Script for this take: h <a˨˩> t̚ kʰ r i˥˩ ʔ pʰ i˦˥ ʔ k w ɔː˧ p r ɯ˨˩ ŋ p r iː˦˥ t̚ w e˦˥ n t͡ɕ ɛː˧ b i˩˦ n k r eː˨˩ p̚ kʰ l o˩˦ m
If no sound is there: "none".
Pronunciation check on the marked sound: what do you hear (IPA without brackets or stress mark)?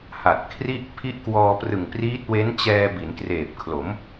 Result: a˨˩